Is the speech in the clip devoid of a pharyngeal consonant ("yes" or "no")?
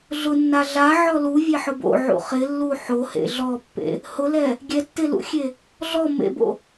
no